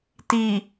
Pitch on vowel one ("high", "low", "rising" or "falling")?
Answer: low